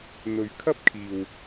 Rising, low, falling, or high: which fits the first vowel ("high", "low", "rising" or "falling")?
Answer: low